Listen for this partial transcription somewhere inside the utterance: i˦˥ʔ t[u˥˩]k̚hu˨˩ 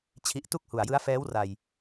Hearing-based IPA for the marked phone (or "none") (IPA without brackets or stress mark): u˥˩